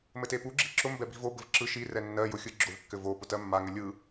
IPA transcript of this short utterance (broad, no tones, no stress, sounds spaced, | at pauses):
m ɘ t e p u ɡ͡ǁ i̤ ǁ ʊ m b ɛ b i̤ v o b ɘ v ǁ ɯ ʃ i r ɛ nː ɜ j ʊ xʲ ɯ ɡ͡ǁ ʊ v kː ɘ v o p ʊ t ɜ mː a ŋ ɘ lʲ ɯ